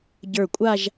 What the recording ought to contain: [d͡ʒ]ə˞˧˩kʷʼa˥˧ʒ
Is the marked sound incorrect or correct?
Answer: incorrect